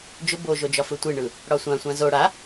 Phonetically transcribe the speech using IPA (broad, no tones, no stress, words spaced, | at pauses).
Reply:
d͡ʒʊ boʒod͡ʒɒfɯ tʷiɳɯ | ɽɒsʷã sʷãzo ɽa